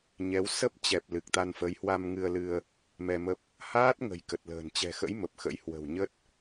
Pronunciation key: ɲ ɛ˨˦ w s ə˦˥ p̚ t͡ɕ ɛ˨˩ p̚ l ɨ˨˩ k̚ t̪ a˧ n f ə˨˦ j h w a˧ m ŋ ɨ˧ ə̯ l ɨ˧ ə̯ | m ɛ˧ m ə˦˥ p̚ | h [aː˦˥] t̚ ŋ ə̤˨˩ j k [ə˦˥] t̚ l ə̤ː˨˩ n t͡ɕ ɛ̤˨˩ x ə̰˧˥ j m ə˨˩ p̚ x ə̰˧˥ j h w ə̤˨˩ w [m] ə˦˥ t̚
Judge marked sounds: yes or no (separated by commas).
yes, no, no